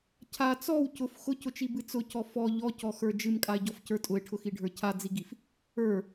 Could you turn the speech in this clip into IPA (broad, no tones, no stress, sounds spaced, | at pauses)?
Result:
cʰ a t͡s ɔ w c ʊ f x ʊ c ʊ t͡ʃ i b ɨ t͡s ʊ c ɔ f ɔ ʎ ɔ c ɔ x ə˞ d͡ʒ ɨ m kʼ a e̯ ɟ ɔ f c ə˞ tʼ ʊ e̯ ʈʰ ʊ x i ɖʱ ə˞ cʰ a d͡z i ɡ i f | ə˞